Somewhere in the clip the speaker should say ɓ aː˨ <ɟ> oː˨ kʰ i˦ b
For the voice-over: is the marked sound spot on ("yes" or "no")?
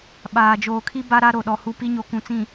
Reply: no